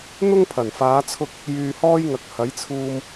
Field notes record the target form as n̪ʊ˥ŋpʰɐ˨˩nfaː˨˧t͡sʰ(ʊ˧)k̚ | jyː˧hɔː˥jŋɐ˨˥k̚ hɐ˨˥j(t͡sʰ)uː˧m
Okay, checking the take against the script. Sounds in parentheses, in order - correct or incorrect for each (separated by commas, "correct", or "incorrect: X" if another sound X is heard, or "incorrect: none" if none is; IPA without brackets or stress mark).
correct, correct